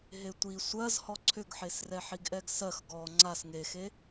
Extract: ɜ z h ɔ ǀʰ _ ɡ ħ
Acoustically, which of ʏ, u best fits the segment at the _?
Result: ʏ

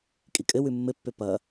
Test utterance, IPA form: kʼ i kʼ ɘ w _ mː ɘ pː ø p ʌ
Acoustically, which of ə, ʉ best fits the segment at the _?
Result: ʉ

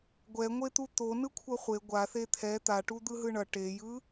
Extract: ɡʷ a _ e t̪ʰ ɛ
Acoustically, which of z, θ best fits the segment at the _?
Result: θ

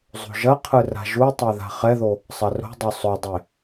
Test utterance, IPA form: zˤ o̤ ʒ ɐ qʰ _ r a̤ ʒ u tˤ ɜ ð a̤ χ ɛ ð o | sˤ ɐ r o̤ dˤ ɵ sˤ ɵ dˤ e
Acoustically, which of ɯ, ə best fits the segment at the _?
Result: ɯ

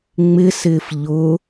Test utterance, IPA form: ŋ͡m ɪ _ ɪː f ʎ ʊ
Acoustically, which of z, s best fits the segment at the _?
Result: s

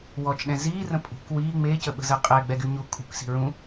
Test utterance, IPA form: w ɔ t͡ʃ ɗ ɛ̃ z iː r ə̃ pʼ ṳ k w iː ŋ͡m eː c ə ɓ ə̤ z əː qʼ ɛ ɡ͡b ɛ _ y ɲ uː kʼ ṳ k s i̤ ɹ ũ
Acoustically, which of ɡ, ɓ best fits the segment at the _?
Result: ɡ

